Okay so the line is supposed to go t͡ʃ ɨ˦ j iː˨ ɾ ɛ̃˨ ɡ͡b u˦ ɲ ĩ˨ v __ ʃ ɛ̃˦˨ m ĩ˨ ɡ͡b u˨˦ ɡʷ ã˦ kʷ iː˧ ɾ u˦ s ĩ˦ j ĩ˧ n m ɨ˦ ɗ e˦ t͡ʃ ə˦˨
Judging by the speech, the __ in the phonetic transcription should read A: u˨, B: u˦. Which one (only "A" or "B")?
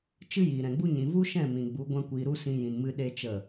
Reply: B